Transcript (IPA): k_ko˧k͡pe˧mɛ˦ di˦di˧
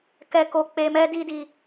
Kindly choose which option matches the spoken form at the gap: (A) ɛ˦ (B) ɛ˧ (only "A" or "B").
B